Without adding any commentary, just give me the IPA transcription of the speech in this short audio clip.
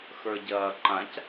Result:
x ə˞ ɟ ɐː ǃ ã c

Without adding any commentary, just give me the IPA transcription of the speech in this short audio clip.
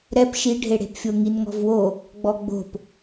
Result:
ɾ ɛ p ʃ i ɖʱ e ɽ e̤ p fʲ o ŋ i n ŋ ɔ̤ v w o | ɡ͡b ɔ ɡ͡b o̤ p

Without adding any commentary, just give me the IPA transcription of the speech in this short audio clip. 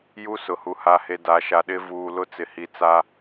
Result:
j u˦ s ʊ˨ h u˨ h a˨ h e˨ d a˨˦ ʃ a˨ ɗ ɪ˦ v uː˨ l ʊ˦ t͡s ɪ˨ h i˨ t͡s a˦

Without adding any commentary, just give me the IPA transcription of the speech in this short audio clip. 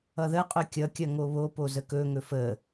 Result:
ʌ ð ə qʼ ɵ kʲ ʌ kʲ ɐ ŋ o β o p o z ə k ɵ ŋ ɵ f ə

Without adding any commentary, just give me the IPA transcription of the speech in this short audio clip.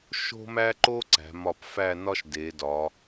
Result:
ʃ o̤˥ m æ˥ ǃ o˥ ǀ æ̤˩˧ m ɒ˧˩ p f æ˥˧ n ɒ˥ ʃ d e˩˧ d ɒ˩˧

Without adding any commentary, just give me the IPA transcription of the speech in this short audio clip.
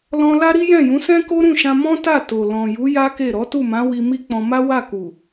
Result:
l ɔ̃˧ l a˦ ɾ i˦ j ɛ̃˦˨ j ũ˨˦ s ɛ̃˦ k o˦ ɾ ũ˦˨ ʃ ã˧ m ɔ̃˦ t a˦˨ t o˨ l ɔ̃˨ j u˨˦ j a˦ k e˦˨ ɾ ɔ˨˦ t u˦˨ m ã˨˦ w i˧ m i˦ k͡p ɔ̃˧ m a˦ w a˦˨ k u˨

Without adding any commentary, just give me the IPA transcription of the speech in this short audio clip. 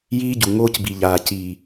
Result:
j iː˦ ɟ u˨ ŋ oː˦ c b i˨ ʎ aː˨ c iː˨

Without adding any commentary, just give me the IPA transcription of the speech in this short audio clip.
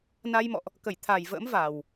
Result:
n a˧ j m ɔ̰˧˨ ʔ | k ə˧˩ j t̪ʰ a˨˩ j v ə̰ː˧˥ m v a˨˩ w

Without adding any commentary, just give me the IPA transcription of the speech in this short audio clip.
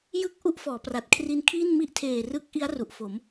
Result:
j ɯ˥˩ k̚ ʔ u˥˩ ʔ f ɔː˩˦ p r a˨˩ t̚ kʰ r i˧ n kʰ iː˥˩ n m i˥˩ ʔ tʰ eː˨˩ r ɯ˦˥ k̚ ʔ i˦˥ a̯ r u˨˩ ʔ f o˩˦ m

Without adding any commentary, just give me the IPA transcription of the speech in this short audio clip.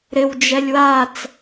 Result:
ɾ ɪ w d͡ʒ ɛ lʲ w a t͡s

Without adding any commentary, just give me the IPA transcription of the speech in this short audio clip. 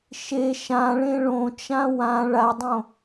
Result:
ʃ e ʃ ã ɭ ẽ ɭ õ t͡ʃ ã w ã ɭ a dˤ õ

